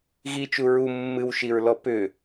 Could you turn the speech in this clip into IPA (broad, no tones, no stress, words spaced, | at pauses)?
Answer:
ɣit͡ʃu ɹu mːɨwʃiɹlɔ pʏ